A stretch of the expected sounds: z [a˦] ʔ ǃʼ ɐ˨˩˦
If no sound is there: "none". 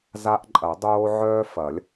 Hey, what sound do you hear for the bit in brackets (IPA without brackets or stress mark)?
a˦